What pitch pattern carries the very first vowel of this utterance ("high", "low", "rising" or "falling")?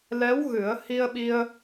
rising